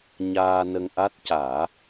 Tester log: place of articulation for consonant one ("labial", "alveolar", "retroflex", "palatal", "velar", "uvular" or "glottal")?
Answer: palatal